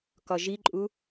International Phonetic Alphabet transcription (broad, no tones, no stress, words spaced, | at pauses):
kɒʒiǃʼu